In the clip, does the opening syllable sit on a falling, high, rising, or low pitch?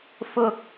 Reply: high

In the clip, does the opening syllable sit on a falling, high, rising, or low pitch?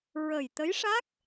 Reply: low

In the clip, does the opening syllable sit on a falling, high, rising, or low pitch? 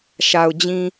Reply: low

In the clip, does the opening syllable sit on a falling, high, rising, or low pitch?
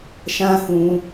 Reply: high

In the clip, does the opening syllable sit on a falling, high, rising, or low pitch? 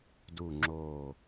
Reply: low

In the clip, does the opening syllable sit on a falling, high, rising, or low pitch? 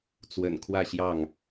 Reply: low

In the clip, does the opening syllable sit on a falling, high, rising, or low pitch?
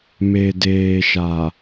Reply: low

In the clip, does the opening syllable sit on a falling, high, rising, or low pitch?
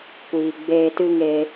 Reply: low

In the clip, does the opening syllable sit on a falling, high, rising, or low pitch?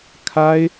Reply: high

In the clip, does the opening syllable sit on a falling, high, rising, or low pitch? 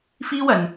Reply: high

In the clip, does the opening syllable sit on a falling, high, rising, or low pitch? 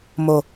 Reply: low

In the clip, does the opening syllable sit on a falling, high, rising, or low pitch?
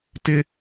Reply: high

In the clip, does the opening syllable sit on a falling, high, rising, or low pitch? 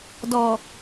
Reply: low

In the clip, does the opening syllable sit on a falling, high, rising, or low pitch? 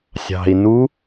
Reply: low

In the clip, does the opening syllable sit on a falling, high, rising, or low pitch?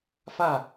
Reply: falling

